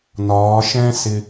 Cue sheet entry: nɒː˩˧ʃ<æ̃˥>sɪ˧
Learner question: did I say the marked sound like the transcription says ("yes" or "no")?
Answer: no